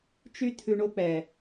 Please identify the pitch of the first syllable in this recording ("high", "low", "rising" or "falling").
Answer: high